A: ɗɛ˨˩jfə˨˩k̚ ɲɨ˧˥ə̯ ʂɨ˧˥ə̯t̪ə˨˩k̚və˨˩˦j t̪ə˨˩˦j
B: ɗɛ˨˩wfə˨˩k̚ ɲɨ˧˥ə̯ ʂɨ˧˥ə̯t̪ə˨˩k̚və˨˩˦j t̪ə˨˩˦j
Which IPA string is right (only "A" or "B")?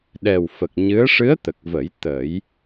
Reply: B